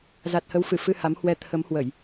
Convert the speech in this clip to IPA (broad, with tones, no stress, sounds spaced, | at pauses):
z a˨˩ t̚ h ə˨˦ w f ɨ˧˩ f ɨ˧ h a˨˦ m h w ɛ˧ t̪ʰ ə˨˦ m h w ə˧˩˨ j